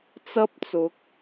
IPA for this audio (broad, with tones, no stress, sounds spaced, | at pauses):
t͡s ɐ˥ p̚ t͡s ʊ˨˥ k̚